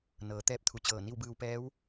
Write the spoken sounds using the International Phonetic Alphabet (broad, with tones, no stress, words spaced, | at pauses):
nɤː˩˧t̪ɛː˧˥p̚t̪ʰu˩˧t͡ɕɤː˧˩ ni˥˨wbɯː˧wpɛː˧˥w